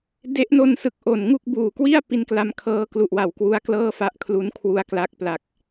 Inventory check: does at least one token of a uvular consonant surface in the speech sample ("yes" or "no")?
no